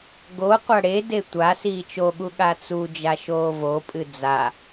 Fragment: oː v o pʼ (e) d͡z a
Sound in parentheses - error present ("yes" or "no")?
yes